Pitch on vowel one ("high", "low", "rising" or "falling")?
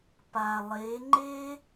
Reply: low